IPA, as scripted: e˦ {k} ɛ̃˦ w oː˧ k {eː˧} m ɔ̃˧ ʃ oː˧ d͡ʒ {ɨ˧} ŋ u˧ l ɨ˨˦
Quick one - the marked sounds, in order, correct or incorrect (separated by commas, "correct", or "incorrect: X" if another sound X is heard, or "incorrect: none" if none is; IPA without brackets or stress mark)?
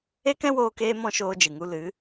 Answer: correct, correct, incorrect: ɨ˨